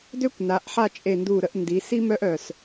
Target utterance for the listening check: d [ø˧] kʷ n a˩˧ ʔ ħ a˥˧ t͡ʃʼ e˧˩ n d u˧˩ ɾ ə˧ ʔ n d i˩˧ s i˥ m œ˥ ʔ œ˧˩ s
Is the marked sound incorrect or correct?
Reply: incorrect